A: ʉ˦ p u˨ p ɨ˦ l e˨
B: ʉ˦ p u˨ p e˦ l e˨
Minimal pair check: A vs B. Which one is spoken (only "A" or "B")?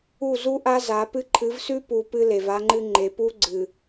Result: A